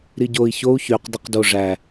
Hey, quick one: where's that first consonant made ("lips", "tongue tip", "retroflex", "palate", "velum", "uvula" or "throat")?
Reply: tongue tip